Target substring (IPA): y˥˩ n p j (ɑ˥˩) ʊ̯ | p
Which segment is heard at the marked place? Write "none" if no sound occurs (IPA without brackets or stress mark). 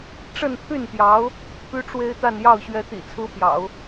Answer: ɑ˧˥